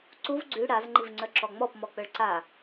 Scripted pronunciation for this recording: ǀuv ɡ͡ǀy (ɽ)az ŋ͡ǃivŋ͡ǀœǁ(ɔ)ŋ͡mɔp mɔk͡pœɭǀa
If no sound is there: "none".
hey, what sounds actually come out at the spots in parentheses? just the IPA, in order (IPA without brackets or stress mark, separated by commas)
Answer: ɽ, ɔ